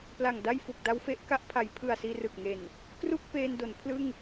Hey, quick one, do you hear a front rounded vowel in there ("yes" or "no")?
no